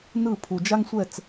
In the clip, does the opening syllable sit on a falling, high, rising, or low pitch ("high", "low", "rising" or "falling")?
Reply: falling